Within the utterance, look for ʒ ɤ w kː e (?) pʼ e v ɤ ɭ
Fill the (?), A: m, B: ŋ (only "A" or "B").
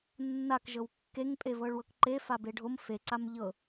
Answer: B